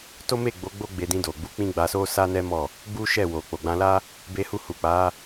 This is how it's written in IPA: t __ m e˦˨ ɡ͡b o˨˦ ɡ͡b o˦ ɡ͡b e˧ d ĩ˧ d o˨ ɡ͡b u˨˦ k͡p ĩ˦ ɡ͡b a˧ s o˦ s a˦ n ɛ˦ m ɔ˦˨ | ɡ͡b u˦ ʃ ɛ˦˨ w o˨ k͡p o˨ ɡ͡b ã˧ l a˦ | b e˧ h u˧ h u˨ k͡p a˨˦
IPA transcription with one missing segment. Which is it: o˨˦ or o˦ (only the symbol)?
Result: o˦